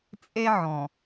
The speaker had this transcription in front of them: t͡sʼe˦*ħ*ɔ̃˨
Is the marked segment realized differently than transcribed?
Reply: yes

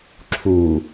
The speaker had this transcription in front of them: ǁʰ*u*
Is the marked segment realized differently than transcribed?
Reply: no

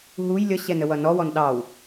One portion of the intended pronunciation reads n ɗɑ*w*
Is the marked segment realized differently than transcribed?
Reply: no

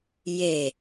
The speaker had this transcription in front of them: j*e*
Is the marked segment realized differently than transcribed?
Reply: no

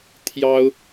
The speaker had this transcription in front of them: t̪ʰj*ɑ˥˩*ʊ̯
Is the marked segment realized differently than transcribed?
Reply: yes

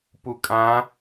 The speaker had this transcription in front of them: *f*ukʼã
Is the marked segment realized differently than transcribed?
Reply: yes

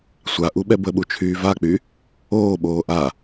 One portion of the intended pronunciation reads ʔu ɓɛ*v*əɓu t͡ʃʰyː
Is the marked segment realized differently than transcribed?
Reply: yes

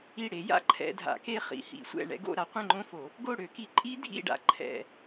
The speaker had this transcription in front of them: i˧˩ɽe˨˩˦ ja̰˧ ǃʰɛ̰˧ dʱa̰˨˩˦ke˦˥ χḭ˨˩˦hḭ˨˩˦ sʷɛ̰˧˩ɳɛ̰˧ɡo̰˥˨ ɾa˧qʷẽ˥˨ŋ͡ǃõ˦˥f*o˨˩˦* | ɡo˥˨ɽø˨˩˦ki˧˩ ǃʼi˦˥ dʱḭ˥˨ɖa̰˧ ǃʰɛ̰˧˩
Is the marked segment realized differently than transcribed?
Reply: no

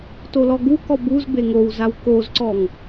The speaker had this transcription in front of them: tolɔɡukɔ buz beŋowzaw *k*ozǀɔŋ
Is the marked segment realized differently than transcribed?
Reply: no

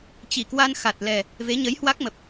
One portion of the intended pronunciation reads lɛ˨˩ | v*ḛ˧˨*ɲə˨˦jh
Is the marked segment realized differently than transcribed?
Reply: yes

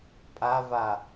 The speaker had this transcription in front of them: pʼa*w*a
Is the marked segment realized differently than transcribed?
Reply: yes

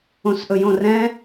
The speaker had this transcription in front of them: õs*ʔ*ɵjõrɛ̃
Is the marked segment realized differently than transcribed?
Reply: no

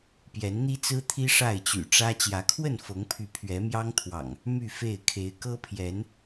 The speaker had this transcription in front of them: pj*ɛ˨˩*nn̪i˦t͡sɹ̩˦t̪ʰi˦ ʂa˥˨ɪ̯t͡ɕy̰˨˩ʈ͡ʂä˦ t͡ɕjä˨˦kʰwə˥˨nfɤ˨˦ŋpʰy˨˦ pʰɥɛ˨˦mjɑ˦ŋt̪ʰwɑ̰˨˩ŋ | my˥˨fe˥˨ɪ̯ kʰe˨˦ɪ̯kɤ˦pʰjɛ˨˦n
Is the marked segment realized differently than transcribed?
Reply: yes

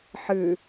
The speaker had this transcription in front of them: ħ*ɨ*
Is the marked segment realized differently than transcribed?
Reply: no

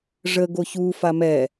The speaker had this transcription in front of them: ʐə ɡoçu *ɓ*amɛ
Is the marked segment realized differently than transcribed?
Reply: yes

